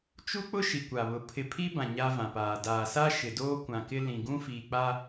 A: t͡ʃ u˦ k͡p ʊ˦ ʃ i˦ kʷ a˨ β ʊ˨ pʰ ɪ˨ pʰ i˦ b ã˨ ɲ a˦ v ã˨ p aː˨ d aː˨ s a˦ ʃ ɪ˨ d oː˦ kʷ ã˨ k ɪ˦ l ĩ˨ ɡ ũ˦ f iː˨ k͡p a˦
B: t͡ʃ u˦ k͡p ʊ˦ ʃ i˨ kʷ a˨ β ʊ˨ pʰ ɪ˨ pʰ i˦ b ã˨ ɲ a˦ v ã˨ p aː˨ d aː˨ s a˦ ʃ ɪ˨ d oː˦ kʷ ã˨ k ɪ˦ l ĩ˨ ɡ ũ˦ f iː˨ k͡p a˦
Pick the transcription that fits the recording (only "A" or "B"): B